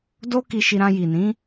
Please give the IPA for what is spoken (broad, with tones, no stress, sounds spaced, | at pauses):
d o˦ k i˧ ʃ i˧ ɾ ã˧ j i˨ n ĩ˨˦